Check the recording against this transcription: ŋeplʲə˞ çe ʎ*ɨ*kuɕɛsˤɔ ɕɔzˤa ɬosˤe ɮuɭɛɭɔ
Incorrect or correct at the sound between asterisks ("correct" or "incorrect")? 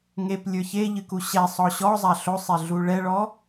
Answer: correct